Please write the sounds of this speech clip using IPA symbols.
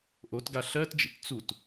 ʔ o t ɡ a ɬ ɜ t d͡ʒ ḭ t t͡s u t

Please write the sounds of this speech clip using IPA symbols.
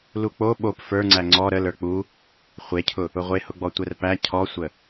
l u k͡p o ɓ o p f ə˞ ŋ͡ǀ æ ŋ͡ǀ ɔ ɾ ə l ə˞ k͡p u | χʷ e cʰ ʊ | ʊ ʁʷ e h ʊ ɡ͡b ɔ tʷ ɛ r p æ cʰ ɔ sʷ ə

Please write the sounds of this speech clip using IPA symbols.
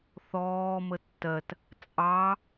θ ɔː m ə tː ɜ t | t͡sʼ ɑ

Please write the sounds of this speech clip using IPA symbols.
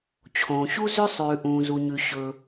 t͡ɕʰ õː˩ ɕ u˥ z ʏ˥ sˤ ʉː˩ ʔ ũː˩ z u˩ ɲ ʉ˩ ɕ ɵ˩

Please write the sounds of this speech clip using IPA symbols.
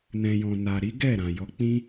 n ɛ̃˨ j ɔ̃˨ n a˨ ɾ i˨˦ ɡ ɛ˦˨ ɾ ã˨ j ɔ˨˦ k͡p ĩ˦

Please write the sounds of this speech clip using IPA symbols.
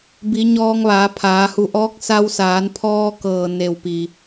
b i˩˧ ɲ ɔː˧ ŋ ʋ aː˩˧ pʰ aː˩˧ h u˧˩ ʔ ɔː˧˥ k̚ s a˧ w s aː˩˧ n pʰ ɔː˧ k ɤː˩ n e˧˩ w p i˩

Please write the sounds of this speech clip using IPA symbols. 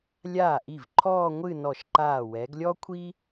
lʲ aː˧˩ ʔ i˧˩ v ǃʰ ɔː˥˧ ŋʷ ɨ˥˧ n ɔ˧˩ ʃ ǃ aː˧˩ w ɛ˩˧ ɡ lʲ ɔ˥ kʷʰ i˥

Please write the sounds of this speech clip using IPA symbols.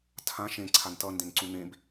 tʰ ã ʃ ẽ ǀʰ a n t ʌ n d ẽ n ǀ ũ n̪ ẽ b

